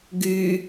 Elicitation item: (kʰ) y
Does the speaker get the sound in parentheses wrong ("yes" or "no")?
yes